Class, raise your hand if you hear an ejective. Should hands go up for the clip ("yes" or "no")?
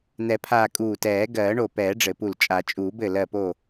yes